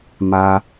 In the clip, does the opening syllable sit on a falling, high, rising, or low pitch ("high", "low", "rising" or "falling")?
high